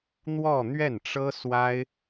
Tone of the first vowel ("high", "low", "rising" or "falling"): falling